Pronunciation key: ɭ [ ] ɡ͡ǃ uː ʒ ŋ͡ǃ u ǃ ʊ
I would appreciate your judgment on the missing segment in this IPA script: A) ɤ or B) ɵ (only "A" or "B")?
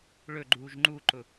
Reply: B